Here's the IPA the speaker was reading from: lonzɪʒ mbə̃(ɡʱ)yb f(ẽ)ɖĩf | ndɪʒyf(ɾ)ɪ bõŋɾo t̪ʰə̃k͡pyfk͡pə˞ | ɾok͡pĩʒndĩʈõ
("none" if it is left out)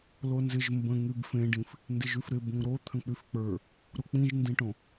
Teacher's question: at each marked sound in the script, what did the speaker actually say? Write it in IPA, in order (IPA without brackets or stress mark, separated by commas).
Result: ŋ, ẽ, ɾ